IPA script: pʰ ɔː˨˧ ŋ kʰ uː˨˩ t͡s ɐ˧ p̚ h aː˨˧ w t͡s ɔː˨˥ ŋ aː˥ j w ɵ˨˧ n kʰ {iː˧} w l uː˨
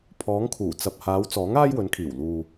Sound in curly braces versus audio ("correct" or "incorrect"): incorrect